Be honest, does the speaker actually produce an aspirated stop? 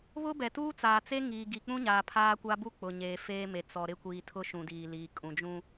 yes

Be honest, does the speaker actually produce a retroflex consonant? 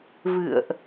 no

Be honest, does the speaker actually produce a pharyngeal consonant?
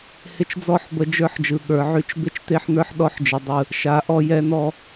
yes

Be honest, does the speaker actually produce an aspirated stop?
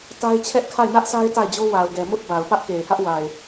yes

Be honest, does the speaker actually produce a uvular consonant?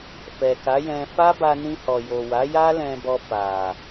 no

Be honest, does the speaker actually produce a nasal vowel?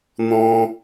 yes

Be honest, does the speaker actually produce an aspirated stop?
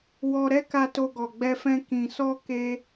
no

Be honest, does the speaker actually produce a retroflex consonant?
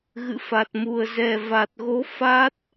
no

